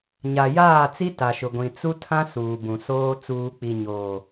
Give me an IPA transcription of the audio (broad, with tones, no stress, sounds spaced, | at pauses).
ɲ a˨ j aː˦˨ t͡s i˦ t a˨ ʃ ʊ˨ ɡʷ ĩ˨ t͡s u˦ tʰ ã˦ s uː˨ b ũ˨ s oː˦ t͡s uː˨ k͡p i˨ ɲ oː˨